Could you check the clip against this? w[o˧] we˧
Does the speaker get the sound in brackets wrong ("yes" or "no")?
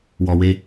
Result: yes